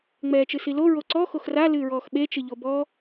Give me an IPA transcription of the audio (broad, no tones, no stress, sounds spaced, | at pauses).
ŋ͡m ɛː t͡ʃ ɨ s i l o ɹ o ǀ ɔ x o x r a l ɨː ɹ ɔː x ɓ e t͡ʃ ɨ ʎ o b ɔ